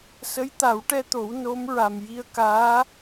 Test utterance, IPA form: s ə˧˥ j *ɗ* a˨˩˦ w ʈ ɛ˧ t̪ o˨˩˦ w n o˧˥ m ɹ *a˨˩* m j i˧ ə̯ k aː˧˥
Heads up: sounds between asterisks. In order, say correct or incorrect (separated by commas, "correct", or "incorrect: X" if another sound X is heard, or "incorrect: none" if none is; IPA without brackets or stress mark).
incorrect: t̪, correct